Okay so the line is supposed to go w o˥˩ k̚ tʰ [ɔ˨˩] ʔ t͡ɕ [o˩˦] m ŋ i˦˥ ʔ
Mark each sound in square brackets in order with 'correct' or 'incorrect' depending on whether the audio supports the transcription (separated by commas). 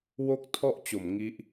incorrect, correct